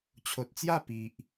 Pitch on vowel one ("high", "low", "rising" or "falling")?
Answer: low